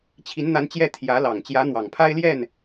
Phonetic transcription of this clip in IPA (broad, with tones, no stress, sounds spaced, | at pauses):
t͡ɕʰ i˧˥ n n̪ a˧˥ n t͡ɕ j ɛ˥˩ t̪ʰ j ä˧˥ l ɑ˨˩ ŋ t͡ɕ j ä˧˥ n̪ w ɑ˨˩ ŋ pʰ a˥ ɪ̯ l j ɛ˥˩ n